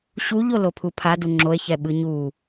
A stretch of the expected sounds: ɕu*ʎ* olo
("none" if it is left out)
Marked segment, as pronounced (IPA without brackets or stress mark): ʎ